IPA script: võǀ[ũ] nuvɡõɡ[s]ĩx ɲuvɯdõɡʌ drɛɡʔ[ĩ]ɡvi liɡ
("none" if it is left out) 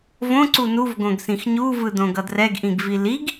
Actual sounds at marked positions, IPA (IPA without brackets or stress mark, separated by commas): u, s, ĩ